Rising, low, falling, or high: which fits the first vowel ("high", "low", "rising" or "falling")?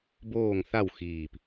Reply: falling